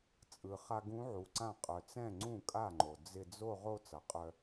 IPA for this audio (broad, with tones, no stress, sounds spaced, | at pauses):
t͡sʼ ɯ˩ χ a˧ ɡ ũ˧˥ ʕ u˩ ǀ ã˥˩ qʼ œ˩ t͡s ɛ̃˥˩ ŋ͡ǀ ũ˥˩ kʼ a˥˩ ŋ͡ǃ o˩ d͡z ɪ˥˧ d͡z o˥˧ ʁ o˥˧ t͡s ʌ˩ qʼ œ˧